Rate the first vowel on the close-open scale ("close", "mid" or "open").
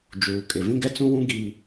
close